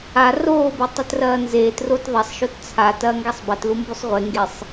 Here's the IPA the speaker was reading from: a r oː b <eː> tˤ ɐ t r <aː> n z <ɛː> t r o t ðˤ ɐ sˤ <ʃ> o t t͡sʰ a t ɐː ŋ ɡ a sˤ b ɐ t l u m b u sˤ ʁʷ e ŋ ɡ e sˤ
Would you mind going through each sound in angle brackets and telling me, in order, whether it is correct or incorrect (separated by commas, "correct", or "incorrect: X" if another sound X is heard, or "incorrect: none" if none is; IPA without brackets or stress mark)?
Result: incorrect: e, incorrect: ɐː, incorrect: eː, correct